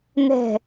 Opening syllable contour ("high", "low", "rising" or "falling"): falling